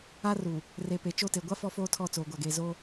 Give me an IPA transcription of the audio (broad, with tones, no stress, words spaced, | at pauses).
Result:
a˦ru˨ | re˨pe˨ t͡ʃo˦˨te˨ ɡʷa˦ fɔ˦foː˦tʰɔ˦˨ t͡soː˨ɡʷa˨ɡeː˨ zo˦